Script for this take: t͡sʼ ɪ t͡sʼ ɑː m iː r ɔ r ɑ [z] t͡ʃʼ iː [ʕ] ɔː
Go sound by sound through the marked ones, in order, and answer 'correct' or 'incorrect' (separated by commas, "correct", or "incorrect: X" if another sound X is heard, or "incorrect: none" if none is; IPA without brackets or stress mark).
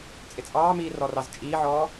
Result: correct, correct